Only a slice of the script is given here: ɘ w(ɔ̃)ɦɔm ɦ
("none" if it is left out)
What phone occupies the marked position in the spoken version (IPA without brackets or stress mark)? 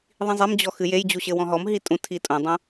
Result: ɔ̃